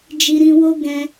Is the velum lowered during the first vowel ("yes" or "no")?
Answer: no